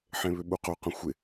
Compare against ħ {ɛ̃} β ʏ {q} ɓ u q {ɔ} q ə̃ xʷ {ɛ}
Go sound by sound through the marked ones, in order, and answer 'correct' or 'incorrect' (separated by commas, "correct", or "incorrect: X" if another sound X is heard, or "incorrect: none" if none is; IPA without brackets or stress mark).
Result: incorrect: ẽ, incorrect: none, incorrect: o, incorrect: ɪ